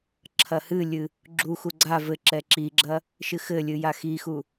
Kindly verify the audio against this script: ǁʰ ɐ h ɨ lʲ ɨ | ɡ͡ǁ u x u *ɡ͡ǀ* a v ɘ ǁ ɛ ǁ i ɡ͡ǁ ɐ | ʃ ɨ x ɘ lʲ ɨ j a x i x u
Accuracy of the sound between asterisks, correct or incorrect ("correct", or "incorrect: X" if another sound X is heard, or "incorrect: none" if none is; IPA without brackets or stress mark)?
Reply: correct